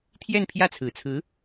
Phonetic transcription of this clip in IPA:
t̪ʰjɛ˥˧npʰjä˥˩t͡sʰɹ̩˨˩t͡sʰɹ̩˧˥

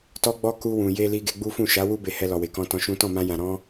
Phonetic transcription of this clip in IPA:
tɔ˦ɡ͡bɔ˦ ku˧wũ˨je˧ li˧ɡe˧ɡ͡bu˦ fũ˦˨ʃa˨˦wu˦ be˧hɛ˧lɔ˨we˨ kɔ̃˧tɔ̃˧ʃũ˦ tɔ̃˦˨mã˧jã˨ ɾɔ̃˧

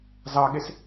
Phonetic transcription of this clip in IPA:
zɑɠes

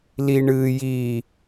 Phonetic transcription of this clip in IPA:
li ɳɨ ji

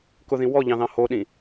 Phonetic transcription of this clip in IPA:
kʊðĩ wɔʎɑ̃ðɑ̃ hoɗĩ

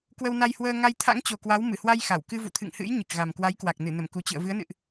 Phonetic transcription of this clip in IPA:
kwə˧wna˧jhwəː˧ ŋa˧jt̪ʰa̰˧˥ŋt͡ɕo˨˩kwa˨˦w mɨ˧˩hwa˧j xa˧˩w kɨ˧vṵ˧˨t̪ʰɨ̰˧˨ŋhɨ̰˧˥j ɲɨ˨˩k̚ɣa˨˩mkwa˨˦jkwa˨˩k̚ nɨ˧˩nə˧˩mku˨˩t͡ɕɨ̰˧˨ə̯ vɨ˨˦ə̯nɨ̰˧˨ʔ

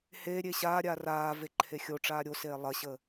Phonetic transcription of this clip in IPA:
heɾʲe ɕaːɾʲaː raː veǃʰexʲoʈ͡ʂaː ɾʲoseː lˠɐɕə

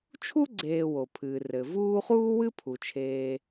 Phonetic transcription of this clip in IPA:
t͡ʃʰu˥ ɡ͡ǀeː˨ wo˩pʰɨː˩ rɘ˩vuː˦χuː˥ wɨ˥pʰu˩t͡ʃʰeː˨

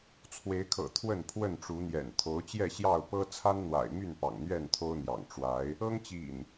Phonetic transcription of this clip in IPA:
t͡sʰwe˨˦ɪ̯kʰɤ̰˨˩ t̪ʰwə˥˨npʰwə˥˨nʈ͡ʂu˨˦n̪jɛ̰˨˩n t̪ʰo˨˦ʊ̯t͡ɕjɛ˥˨ɕjɑ˥˨ʊ̯pɤ˦ t͡sʰa˦nn̪wa̰˨˩ɪ̯my˥˨n pɑ̰˨˩ŋn̪ɥɛ˥˨n t̪ʰo˦ʊ̯n̪jɑ̰˨˩ŋ ʈ͡ʂwa˨˦ɪ̯ | ɤ˦ŋt͡ɕḭ˨˩n

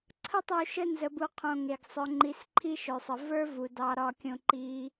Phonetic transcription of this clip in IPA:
ǀʰə˦tˤu˨ ʃə˦nzə˨bu˨ qʰõ˨ŋe˩ɡsˤœ˨ ŋ͡ǃi˨sǃʰi˦ʃœ˩sˤə˩ və˞˦vu˩dɑ˨ ɾɒ˨kʲõ˨ǃi˨

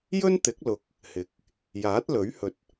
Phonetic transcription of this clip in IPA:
jɵ˥nt̪ɪ˨˥k̚lʊ˨˥k̚ | hɪ˨˥k̚ | jaː˨˥t̚lɵ˨˥ɥhɵ˨t̚

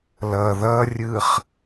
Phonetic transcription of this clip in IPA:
lʌ ðʌrʲɯχ

